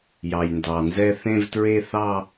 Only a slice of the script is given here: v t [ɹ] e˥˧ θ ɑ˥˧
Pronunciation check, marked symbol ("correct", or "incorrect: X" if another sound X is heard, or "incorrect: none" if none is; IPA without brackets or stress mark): correct